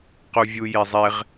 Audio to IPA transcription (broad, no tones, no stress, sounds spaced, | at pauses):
q u vʲ u j e zˤ e ʁ